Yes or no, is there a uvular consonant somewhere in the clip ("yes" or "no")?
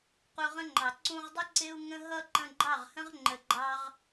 yes